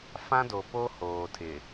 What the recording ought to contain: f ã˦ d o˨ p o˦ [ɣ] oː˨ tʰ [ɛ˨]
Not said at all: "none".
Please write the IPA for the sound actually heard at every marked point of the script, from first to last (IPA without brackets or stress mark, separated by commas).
h, ɪ˨